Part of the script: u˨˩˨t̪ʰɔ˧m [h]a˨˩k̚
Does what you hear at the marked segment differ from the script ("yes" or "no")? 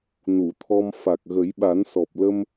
yes